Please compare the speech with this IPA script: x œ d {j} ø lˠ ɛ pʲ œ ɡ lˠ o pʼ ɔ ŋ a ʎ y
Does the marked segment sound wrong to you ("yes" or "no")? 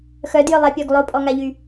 no